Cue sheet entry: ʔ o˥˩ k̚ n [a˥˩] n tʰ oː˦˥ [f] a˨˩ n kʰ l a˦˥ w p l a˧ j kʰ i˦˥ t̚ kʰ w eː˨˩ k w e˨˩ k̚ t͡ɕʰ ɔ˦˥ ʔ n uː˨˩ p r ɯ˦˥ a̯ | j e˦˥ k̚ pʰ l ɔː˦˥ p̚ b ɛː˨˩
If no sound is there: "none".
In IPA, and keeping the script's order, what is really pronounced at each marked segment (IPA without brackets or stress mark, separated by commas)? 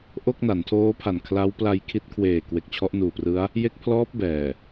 a˩˦, pʰ